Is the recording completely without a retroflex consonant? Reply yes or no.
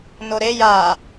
yes